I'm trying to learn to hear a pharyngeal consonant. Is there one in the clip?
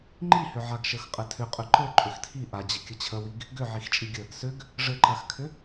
yes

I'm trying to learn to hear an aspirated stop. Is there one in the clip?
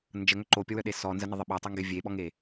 no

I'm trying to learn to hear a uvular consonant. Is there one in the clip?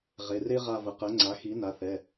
yes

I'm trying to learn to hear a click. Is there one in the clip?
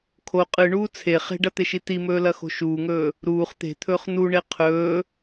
no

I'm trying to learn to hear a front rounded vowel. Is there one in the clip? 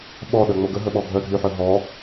yes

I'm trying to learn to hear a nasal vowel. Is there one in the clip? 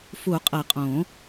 yes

